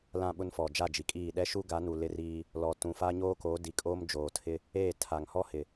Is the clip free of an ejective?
no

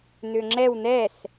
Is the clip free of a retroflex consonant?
yes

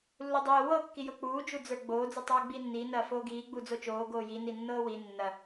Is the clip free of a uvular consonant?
yes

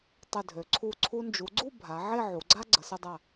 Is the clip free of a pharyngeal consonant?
no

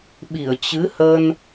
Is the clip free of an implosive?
no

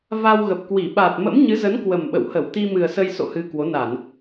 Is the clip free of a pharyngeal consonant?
yes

